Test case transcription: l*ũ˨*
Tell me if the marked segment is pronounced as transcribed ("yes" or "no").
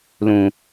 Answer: yes